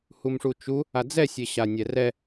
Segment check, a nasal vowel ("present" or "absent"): absent